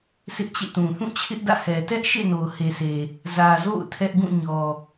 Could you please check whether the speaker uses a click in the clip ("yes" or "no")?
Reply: no